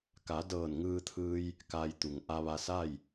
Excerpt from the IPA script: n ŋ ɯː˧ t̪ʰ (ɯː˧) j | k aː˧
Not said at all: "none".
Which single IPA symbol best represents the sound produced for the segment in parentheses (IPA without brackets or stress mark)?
ɯː˧